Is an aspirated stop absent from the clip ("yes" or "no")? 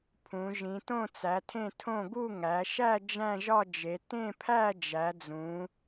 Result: no